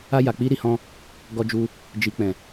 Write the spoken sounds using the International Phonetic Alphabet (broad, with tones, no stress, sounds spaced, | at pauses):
a˧ j a˨ k͡p i˧ ɾ i˨ h ɔ̃˧ | ɡ ɔ˧ d͡ʒ u˧ | d͡ʒ i˨ k͡p ɛ̃˨